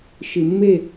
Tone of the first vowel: low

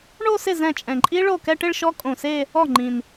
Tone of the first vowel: falling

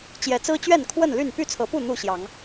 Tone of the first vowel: rising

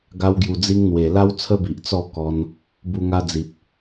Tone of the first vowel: high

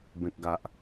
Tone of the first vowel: low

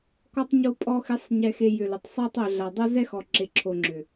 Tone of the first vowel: low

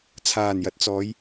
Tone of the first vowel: low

